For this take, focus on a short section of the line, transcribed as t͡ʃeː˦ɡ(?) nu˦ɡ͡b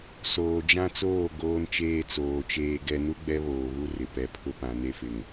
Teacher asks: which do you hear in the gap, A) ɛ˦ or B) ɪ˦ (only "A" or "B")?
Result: A